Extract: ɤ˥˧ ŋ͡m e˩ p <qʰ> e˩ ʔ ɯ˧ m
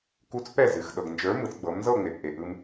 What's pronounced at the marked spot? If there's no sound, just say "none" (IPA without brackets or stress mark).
ʔ